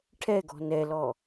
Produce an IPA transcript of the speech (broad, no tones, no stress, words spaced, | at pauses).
ʈʰɛɡɔ̤ nɛlɔ